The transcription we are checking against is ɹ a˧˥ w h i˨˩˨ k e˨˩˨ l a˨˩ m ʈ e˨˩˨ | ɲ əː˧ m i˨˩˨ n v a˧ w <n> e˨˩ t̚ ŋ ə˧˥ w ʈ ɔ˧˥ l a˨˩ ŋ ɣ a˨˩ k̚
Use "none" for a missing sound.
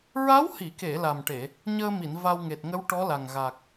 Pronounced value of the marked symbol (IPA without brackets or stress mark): ŋ